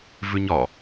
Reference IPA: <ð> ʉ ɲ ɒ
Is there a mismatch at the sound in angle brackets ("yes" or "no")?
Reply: yes